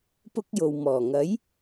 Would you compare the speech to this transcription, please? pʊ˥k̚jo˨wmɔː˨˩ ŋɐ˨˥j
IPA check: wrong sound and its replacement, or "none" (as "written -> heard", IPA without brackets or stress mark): none